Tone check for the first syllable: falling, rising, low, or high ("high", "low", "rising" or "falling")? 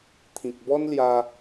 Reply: low